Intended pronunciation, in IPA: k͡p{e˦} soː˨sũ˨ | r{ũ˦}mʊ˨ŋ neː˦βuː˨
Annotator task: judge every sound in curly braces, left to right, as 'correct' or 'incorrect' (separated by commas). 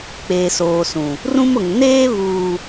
incorrect, correct